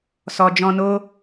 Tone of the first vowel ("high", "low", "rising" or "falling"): low